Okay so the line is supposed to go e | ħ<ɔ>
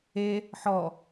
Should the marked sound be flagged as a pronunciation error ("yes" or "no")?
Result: no